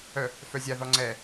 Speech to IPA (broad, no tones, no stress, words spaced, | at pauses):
œ | fœzʲaðɔ ŋ͡ǀɛ